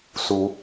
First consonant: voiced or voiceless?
voiceless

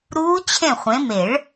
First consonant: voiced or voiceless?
voiced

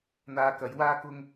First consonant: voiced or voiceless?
voiced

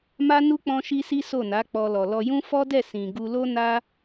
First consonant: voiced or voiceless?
voiced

